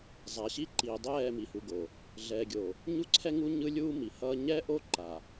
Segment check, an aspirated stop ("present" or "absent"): present